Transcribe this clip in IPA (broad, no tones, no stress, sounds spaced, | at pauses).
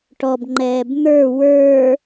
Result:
ʈ ɔ b ŋ͡ǃ ɛː b n̪ ə˞ w ə˞